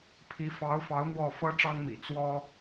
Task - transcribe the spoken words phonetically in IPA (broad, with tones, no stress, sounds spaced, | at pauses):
pʰ i˧˥ f ɑ˧˥ ʊ̯ f ɑ˧˥ ʊ̯ n̪ w ɔ˥˩ f ɤ˥ ʈ͡ʂ ɑ˥ ŋ m ḭ˨˩ t͡s w ɔ˥